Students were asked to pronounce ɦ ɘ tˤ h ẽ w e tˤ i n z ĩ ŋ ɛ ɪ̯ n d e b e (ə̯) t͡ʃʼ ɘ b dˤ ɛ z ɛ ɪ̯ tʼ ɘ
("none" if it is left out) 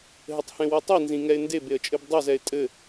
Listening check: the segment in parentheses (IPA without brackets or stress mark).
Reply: ə̯